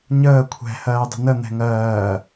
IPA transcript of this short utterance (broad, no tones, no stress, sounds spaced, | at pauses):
ɲ əː kʷʰ ɛ̤ h ɜː dˤ ə̤ n ə n̪ ɛ̤ ŋ ɜː